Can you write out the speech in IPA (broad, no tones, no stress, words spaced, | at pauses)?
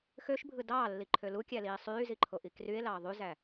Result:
xøʃbʱɯ dɑːlːiǃʰø lukʲæliː sˤyːziǃʰoʔi krye̯lɑ ðˤyzæ